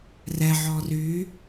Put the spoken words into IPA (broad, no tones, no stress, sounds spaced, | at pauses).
r ɛ ʕ ɔ r y